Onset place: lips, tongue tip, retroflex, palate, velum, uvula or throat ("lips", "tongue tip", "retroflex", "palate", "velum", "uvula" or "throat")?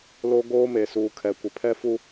tongue tip